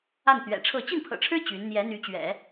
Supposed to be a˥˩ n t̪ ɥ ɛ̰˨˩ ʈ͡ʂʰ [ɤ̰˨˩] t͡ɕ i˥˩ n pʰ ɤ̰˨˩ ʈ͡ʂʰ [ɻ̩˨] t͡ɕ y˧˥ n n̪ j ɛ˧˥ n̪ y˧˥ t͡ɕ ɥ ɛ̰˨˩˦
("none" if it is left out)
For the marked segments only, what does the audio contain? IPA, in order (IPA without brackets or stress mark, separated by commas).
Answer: ɤ˥˧, ɻ̩˥